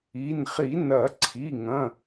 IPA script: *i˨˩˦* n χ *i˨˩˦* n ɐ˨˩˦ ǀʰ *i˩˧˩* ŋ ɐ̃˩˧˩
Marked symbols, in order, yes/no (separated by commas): no, yes, yes